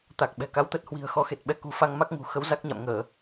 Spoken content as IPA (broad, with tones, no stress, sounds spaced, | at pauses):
t̪ a˨˩ k̚ ɓ ɛ̤˨˩ k a˨˦ w t̪ ə˦˥ t̚ h w i̤˨˩ ə̯ x ɔ˨˦ x e˨˩ t̚ ɓ ɛ˧ k ṳ˨˩ f a˧ ŋ m a˦˥ k̚ ŋ ṳ˨˩ x ə˨˦ w z a˦˥ k̚ ɲ a̰˧˨ m ŋ əː˧˩˨